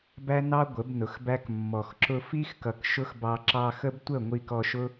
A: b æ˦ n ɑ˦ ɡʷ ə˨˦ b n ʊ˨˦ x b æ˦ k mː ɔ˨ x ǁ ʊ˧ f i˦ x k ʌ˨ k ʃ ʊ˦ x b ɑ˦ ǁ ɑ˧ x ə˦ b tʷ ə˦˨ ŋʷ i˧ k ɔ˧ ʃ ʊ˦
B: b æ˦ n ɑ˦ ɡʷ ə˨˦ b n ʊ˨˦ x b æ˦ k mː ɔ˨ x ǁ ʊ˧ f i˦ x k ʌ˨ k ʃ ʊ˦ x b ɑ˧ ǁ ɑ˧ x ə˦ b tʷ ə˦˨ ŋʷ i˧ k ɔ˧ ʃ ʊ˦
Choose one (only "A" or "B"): B